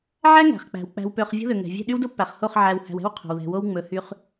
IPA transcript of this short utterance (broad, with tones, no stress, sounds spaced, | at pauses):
ʕ æ˦ ŋ æ̤˨ χ k͡p æ̤˨ w k͡p æ̤˨ w p ø˨ χ vʲ o̤˦ ð ø˨ ŋ ɛ̤˨ vʲ ɛ̤˦˨ ɗ y˦ w d o˦ pː æ˨ χ h o˦˨ χ ʕ æ˨ w h æ̤˨ w ɛ̤˦ w qʰ o̤˨ w ð ɛ̤˨ w o˦ w ŋ͡m ɵ˨˦ h y˦ χ